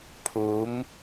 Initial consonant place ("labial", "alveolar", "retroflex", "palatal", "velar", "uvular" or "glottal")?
labial